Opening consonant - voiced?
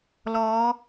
yes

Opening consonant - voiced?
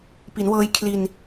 no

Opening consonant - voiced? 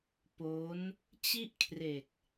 no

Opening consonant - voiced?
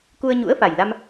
no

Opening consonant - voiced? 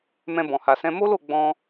yes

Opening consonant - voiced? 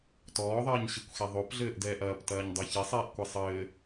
no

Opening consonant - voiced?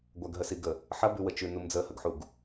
yes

